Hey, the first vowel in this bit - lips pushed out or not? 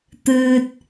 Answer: no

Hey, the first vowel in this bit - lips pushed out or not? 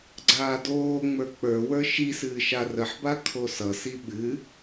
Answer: no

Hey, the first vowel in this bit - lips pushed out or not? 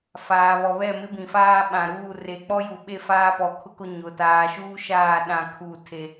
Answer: no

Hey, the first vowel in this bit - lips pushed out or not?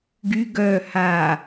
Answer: yes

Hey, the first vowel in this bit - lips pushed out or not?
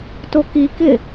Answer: yes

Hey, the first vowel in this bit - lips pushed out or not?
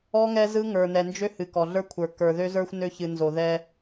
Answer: yes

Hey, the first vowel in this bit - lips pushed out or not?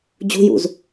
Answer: yes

